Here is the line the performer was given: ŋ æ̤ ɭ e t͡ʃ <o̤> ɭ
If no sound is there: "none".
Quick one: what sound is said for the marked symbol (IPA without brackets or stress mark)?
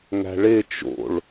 o̰